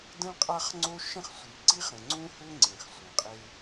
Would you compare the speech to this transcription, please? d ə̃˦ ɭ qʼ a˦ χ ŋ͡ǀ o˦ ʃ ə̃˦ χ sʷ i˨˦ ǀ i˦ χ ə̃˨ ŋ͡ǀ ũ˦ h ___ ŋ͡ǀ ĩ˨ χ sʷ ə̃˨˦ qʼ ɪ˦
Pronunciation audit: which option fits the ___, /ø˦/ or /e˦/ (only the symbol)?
ø˦